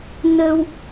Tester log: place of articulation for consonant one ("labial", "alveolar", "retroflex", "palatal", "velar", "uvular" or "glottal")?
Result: alveolar